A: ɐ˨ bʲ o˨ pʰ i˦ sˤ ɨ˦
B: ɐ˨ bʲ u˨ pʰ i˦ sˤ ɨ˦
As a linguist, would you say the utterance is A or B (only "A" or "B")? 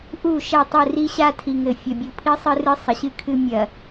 B